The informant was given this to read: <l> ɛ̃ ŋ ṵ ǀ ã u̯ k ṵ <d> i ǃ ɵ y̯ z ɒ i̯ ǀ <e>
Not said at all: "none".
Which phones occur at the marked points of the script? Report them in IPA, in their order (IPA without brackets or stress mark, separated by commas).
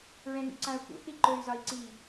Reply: ɹ, θ, i